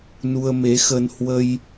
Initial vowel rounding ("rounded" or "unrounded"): rounded